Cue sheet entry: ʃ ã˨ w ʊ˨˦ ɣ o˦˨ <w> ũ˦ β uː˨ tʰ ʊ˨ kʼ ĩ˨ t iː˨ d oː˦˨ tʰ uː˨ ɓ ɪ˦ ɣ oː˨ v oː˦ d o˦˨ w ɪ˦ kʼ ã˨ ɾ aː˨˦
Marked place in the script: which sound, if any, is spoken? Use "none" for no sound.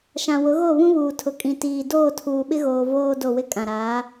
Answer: β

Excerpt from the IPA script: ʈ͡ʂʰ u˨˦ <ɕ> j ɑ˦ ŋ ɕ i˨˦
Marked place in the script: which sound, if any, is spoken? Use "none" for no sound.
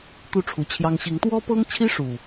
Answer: t͡ɕʰ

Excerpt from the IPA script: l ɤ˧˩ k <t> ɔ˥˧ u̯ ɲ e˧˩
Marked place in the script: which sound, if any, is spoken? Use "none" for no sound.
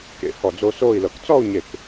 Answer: t͡s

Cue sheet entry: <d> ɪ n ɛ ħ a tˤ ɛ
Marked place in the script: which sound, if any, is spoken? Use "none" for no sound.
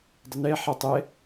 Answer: dˤ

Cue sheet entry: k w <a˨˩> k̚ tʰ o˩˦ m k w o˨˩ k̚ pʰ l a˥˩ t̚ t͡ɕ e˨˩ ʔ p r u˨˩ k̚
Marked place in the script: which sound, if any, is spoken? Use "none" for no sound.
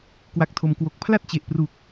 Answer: a˨˩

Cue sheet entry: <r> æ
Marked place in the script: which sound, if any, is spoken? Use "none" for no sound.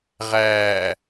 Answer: ʁ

